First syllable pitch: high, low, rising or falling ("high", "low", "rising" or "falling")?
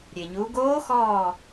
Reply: low